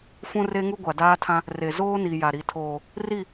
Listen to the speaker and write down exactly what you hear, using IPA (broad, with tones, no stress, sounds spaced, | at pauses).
f ũ˦ r e˦ ŋ u˦ ɡʷ a˨ d aː˦ tʰ ã˦ | r e˨ z oː˦ n i˨ j a˨ ɾ i˨ tʰ oː˨ | r i˦˨